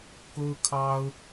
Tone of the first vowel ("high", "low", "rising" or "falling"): high